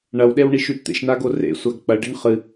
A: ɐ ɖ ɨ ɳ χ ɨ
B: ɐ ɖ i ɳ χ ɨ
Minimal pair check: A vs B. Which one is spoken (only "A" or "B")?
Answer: B